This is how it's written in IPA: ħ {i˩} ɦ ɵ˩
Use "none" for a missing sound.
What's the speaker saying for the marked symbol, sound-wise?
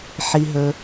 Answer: i˩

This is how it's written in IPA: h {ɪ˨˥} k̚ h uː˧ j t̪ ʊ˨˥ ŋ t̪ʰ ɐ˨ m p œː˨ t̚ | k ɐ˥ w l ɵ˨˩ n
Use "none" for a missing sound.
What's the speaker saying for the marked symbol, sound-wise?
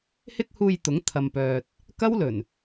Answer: ɪ˥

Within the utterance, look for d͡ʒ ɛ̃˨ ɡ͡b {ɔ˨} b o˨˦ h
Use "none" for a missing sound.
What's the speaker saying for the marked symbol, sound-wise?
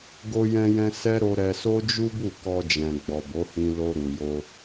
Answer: ɔ˨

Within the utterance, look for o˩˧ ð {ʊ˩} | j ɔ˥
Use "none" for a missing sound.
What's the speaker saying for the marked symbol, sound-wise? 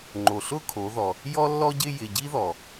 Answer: ɔ˩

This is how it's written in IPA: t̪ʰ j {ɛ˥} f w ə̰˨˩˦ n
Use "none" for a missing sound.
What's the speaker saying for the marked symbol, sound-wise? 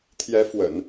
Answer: ɛ˧˥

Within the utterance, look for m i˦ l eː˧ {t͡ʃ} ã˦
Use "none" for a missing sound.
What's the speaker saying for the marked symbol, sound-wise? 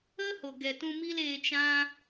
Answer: t͡ʃ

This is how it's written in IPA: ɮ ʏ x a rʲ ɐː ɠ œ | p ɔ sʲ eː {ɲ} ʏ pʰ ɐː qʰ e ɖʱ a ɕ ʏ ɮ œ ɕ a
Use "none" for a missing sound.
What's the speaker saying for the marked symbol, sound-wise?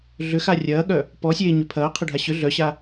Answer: ɲ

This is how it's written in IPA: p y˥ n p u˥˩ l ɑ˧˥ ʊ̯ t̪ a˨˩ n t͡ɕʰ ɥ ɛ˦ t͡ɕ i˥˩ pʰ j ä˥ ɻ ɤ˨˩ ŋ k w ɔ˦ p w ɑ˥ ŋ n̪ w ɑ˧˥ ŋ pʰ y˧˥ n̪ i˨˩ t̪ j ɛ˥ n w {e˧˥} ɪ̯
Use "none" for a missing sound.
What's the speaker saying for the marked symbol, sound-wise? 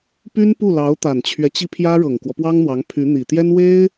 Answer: e˥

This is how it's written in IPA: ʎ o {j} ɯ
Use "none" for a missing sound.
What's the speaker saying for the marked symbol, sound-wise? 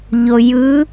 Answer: j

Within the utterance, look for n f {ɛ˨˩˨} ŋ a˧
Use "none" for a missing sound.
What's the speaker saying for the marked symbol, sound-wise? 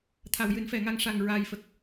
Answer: ɛ˨˩˨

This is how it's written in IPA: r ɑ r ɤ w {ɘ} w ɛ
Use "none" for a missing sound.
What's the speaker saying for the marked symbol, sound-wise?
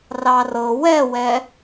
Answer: ɛ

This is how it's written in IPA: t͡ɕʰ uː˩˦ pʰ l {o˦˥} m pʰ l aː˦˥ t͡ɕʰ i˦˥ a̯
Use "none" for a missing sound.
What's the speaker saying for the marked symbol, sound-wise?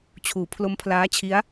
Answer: o˦˥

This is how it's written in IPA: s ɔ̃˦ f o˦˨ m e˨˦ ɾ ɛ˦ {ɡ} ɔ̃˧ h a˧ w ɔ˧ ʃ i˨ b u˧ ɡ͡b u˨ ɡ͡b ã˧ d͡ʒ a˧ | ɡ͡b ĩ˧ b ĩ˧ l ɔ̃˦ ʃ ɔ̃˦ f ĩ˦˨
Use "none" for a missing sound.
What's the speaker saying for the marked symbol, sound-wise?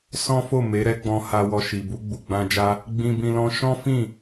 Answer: ɡ͡b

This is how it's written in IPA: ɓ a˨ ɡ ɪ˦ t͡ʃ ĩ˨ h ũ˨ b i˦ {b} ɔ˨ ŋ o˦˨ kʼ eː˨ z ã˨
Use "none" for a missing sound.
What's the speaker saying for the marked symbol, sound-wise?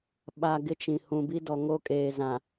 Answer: d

